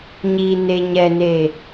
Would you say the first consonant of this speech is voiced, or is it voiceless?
voiced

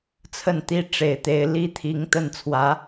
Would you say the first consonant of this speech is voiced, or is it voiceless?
voiceless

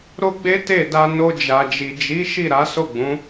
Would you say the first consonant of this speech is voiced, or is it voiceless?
voiced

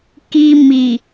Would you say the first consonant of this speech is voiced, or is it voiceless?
voiceless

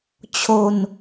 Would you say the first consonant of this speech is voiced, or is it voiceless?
voiceless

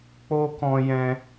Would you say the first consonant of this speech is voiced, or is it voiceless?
voiceless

